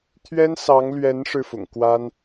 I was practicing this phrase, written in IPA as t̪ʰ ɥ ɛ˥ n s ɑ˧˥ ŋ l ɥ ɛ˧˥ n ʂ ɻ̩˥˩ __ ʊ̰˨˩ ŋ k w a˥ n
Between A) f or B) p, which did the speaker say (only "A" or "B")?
A